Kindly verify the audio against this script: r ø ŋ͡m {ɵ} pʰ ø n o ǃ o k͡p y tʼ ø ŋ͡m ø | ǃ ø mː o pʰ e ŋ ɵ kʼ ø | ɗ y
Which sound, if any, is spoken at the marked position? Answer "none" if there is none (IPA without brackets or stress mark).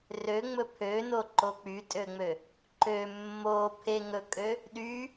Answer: ɵ